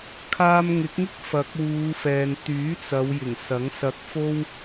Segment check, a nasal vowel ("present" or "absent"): absent